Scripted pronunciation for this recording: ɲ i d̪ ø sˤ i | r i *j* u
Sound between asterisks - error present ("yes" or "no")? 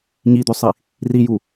no